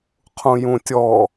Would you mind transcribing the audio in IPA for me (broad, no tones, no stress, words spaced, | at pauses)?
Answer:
qʰũjũtʲɔ